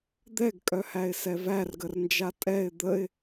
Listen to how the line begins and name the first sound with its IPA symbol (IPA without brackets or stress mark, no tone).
d̪